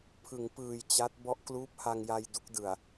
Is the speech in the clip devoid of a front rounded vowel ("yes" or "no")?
yes